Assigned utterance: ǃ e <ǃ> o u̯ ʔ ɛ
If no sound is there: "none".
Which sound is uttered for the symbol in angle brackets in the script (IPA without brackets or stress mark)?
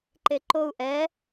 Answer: ǃ